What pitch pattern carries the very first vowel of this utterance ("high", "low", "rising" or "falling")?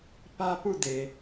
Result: high